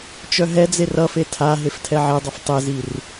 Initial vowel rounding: rounded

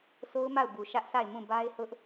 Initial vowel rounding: rounded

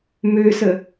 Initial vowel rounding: rounded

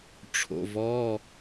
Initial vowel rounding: rounded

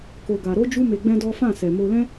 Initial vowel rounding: rounded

